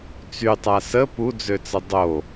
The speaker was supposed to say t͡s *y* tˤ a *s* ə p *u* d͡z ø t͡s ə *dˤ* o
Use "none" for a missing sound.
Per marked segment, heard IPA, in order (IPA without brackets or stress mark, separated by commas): y, s, u, dˤ